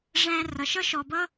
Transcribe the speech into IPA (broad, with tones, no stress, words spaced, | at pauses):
ʐæ̃˦ rʌ˩ʃʌ˥ʃɔ˨bʌ˥